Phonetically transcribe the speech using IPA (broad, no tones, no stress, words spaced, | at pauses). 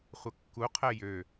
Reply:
χʷəkːu qʰɛjø